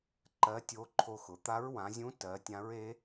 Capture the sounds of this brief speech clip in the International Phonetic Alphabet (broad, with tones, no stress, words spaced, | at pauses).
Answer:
ǃɜ˧˥tʲo˧˥ǃʰo˧xʊ˩˧ t̪a˧˥ɹwã˩˧zʲũ˧˥ tɜ˩˧tʲã˧˥ɹe˧˥